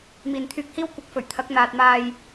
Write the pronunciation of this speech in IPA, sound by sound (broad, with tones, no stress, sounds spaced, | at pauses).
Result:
m iː˨ n t̪ʰ yː˧ k̚ h iː˥ w kʷ ɐ˨˥ k̚ f ɵ˨˩ ɥ t̪ʰ ɐ˨˥ k̚ n̪ aː˨ t̚ m aː˨ j